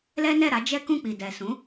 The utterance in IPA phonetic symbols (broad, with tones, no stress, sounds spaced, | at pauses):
l ɛ˦ n ɛ˦˨ ɾ a˨˦ d͡ʒ ɛ˦ k ũ˦˨ k͡p i˨ d ɛ˨ s ũ˨˦